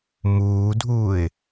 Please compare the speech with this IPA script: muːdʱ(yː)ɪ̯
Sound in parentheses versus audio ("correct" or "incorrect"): incorrect